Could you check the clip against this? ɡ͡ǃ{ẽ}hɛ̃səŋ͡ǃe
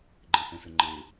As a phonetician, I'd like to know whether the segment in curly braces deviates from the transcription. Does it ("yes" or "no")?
no